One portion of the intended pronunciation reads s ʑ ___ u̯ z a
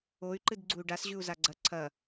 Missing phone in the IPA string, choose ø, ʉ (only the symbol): ʉ